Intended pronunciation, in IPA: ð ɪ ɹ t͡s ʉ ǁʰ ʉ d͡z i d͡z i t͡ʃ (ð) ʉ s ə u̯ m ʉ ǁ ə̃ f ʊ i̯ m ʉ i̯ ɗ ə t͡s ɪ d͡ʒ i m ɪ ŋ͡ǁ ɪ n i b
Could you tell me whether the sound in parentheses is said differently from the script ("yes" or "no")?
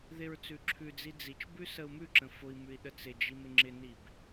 yes